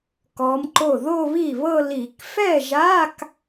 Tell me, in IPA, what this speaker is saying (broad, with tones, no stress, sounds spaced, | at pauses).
k ɔ˧˥ m ǃ o˥˩ ð o˥˧ β i˥˩ β ɤ˥˧ l i˧˩˧ k f ɛ˥˩ ʒ a˧˥˧ k